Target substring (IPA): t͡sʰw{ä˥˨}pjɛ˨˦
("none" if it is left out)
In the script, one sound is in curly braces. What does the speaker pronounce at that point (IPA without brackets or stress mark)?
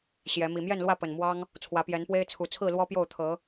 ä˨˦